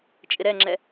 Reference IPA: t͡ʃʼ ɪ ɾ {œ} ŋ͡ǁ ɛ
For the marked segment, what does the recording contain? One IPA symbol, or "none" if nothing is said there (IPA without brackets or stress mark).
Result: ɛ